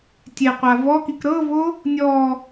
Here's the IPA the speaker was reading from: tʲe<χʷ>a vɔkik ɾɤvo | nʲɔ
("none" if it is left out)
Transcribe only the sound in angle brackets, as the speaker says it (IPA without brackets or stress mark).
qʷ